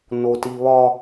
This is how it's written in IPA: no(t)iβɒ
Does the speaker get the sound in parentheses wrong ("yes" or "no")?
no